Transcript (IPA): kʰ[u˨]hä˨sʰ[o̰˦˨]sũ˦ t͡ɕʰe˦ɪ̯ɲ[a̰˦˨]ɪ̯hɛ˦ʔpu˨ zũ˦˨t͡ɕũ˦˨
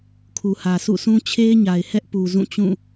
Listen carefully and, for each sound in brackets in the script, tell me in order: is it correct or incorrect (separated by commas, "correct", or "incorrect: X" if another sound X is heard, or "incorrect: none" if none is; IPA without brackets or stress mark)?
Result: correct, incorrect: ṵ˦˨, incorrect: a˨